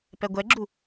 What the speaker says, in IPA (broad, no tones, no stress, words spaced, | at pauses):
pɛɡʷɛɡ͡ǁu